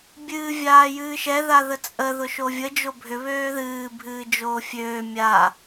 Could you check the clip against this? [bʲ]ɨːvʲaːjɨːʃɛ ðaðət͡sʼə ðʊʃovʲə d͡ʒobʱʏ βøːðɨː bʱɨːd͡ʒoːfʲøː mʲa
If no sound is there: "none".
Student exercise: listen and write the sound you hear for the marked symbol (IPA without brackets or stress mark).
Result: bʲ